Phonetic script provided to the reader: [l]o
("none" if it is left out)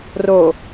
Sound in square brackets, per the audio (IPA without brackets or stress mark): r